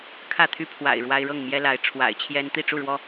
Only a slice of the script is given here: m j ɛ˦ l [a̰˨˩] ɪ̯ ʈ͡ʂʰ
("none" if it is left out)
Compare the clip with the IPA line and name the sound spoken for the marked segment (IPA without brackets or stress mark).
a˨˦